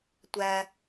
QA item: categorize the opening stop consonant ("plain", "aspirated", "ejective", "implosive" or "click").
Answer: plain